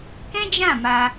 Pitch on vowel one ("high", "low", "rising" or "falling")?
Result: high